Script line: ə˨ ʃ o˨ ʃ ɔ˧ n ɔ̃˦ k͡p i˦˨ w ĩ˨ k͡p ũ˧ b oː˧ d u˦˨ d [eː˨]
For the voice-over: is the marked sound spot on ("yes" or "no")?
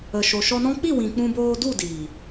no